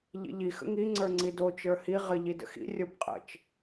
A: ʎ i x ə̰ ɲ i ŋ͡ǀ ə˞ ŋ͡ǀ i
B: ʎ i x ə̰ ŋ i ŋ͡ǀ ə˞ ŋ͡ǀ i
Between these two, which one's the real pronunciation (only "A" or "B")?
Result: B